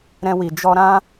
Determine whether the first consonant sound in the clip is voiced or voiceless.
voiced